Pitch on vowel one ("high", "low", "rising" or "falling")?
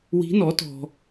rising